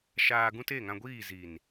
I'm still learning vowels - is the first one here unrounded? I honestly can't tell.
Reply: yes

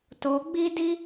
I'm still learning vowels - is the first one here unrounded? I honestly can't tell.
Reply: no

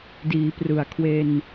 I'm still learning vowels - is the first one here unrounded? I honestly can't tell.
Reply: yes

